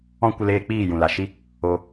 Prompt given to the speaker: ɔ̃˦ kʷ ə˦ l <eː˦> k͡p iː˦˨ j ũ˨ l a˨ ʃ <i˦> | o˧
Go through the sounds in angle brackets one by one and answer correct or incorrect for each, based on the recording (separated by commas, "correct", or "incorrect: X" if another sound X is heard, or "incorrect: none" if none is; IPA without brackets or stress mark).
correct, correct